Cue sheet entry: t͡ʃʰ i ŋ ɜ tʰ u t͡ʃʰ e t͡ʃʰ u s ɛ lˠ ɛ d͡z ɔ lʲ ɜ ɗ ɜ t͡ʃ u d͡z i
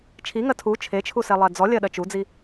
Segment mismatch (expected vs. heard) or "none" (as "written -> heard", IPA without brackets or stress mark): none